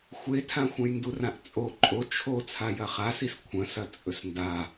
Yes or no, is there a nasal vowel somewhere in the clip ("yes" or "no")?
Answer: yes